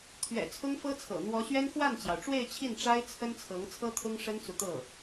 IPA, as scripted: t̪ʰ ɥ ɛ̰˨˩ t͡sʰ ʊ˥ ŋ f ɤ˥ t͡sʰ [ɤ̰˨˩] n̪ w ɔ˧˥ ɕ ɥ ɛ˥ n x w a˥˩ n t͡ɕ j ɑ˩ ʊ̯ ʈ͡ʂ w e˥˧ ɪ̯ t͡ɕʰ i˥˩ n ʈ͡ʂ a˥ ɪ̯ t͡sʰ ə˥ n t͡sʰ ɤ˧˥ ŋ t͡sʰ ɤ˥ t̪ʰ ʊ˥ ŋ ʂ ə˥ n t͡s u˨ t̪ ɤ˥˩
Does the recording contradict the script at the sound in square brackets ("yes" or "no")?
no